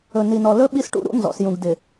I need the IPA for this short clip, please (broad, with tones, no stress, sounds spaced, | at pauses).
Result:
ɵ˨ n i˨ n ɔ˨ l ɵ˦ ɓ i˦ s ʈ ṵ˦ ɾ ṵ˦ n z ɔ̰˨ s j ũ˨ ɡ d ɪ˨